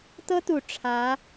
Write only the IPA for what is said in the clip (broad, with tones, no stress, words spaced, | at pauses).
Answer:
t̪ɤ˥t̪u˨˩ ʈ͡ʂʰä˧˥